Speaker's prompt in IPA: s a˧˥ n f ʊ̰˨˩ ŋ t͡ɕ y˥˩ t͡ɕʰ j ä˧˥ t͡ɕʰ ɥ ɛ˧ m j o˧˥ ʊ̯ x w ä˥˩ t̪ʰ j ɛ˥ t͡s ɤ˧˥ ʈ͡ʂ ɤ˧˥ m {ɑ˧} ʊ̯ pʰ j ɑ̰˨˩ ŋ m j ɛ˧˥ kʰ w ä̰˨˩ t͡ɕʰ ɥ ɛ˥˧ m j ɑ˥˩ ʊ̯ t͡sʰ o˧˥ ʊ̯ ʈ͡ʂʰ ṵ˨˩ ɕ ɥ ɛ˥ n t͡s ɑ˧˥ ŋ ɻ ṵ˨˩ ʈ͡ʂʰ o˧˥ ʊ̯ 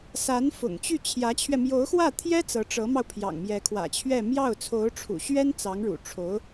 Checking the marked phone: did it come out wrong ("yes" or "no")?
no